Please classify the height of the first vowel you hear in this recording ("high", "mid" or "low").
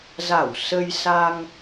low